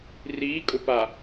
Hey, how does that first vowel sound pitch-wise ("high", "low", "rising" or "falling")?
rising